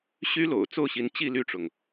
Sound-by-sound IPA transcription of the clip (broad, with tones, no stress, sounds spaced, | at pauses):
ɕ y˥ l o̰˨˩ ʊ̯ t͡s o˥˩ ʊ̯ ɕ i˧˥ n t͡ɕ i˥˧ l y˥˩ ʈ͡ʂ ʊ˩ ŋ